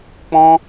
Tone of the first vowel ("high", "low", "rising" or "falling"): high